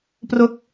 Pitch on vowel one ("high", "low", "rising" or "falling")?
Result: falling